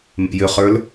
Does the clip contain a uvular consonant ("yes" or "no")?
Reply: yes